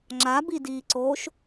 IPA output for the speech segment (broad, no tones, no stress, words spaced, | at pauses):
ŋ͡ǁabidiːǀoːʃ